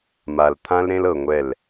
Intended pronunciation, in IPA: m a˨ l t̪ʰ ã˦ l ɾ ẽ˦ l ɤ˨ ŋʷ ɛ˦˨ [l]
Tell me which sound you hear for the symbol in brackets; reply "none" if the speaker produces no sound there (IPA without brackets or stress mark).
l